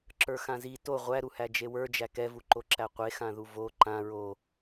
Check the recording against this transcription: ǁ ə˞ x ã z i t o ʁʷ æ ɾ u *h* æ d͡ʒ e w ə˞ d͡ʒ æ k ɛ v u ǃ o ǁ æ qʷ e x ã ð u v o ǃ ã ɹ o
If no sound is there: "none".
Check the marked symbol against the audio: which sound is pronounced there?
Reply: h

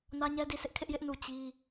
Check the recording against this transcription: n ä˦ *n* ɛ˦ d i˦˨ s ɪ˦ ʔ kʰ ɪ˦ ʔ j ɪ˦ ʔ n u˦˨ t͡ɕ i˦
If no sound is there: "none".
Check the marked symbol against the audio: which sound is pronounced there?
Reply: ɲ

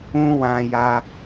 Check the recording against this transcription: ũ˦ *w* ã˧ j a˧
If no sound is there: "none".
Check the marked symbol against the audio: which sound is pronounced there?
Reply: w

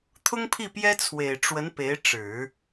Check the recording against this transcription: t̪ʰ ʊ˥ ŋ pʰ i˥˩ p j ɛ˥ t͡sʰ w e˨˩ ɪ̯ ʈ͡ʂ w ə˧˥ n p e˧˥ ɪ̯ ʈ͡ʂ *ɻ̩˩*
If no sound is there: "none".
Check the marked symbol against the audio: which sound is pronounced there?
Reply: ɻ̩˨˩˦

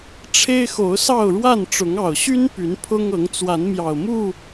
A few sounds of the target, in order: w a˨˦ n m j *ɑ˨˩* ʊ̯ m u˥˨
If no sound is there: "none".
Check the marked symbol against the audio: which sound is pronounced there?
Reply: ɑ˨˩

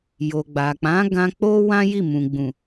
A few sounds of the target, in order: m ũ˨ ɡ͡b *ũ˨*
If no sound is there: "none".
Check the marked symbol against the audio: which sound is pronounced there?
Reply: ũ˨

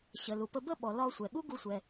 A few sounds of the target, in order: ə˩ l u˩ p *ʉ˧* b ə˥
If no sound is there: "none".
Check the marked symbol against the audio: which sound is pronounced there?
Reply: ə˧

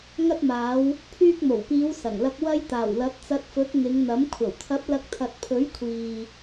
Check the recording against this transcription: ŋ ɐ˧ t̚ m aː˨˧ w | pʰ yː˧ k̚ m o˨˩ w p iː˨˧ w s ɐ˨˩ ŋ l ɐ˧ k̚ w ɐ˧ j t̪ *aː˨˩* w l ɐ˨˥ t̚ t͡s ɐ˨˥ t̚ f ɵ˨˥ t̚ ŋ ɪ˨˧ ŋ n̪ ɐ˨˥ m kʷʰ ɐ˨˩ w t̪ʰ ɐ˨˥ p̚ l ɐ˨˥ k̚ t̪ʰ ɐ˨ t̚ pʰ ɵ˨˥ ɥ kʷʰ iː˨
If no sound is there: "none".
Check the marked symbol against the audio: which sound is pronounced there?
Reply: aː˨˩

